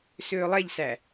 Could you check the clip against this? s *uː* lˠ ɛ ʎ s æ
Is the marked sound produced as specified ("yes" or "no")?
no